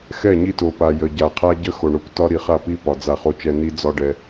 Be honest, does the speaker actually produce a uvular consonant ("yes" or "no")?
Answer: yes